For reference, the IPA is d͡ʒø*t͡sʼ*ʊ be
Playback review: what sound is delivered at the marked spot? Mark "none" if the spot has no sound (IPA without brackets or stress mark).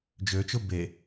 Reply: t͡ʃ